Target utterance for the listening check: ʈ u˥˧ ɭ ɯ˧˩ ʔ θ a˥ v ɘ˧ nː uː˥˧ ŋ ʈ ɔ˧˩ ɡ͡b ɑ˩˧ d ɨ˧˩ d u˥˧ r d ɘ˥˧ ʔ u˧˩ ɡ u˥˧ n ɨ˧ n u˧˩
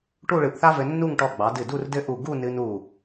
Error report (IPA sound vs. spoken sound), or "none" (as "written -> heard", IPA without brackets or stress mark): uː˥˧ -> u˥˧